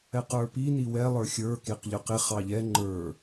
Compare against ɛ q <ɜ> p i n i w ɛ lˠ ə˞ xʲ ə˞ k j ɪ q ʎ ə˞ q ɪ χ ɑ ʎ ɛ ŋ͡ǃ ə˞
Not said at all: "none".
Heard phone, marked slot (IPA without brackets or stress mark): ə˞